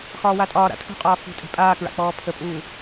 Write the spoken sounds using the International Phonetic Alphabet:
x ɒː w a tʼ ɒː ɾ a̰ tʰ ṳ qʼ ɒː f ṳ tʼ e̤ pʼ aː k ɹ a̰ k͡p ɔː pʰ ə pʼ uː

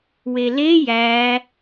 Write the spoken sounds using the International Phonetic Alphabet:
w e l e j æ

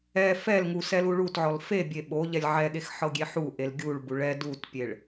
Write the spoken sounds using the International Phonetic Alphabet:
ɛ f ɛ l ŋ u s ɛ l u ɭ u t ʕ ɔ l f e bʲ e ɓ o ʎ ɛ lʲ ʕ ɛ ɠ e x ħ ɤ ɡʲ e ħ u ʔ e l ɡʲ u ɭ b u ɭ ɛ d u t pʲ e ɭ

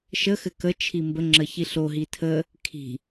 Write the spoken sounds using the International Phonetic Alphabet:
ʃ ə x ɘ k ə t͡ʃʰ i m b ə ŋ͡ǁ ə ç i ɬ o ɦ i tʰ ə | kʰ i̤

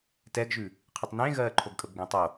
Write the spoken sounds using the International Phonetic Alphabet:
t ɛ ɡ ʒ ʉ | qʰ ɨ tˤ n ẽ ɣ ɜː ǃʰ o ɡ kʼ ə b ɡ ẽ tˤ o

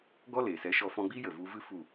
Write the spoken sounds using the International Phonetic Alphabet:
ɡ ɔ˦ l e˨ s ɛ˨˦ ʃ ɔ˧ f ɔ̃˧ ɡ͡b iː˦ j ə˨ v u˧ v ɨ˦ f u˦˨

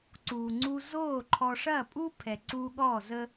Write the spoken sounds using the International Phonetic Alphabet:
ǀ uː˨ ŋ͡ǀ u˧ z oː˦˨ ǃʰ ɔ˧ ʂ ɐː˦˨ pʼ u˦ pʰ ɛ˨ ǀ uː˧ ɠ ɔː˦˨ z ə˦

